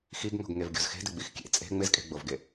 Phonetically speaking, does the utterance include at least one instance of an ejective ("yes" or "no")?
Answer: yes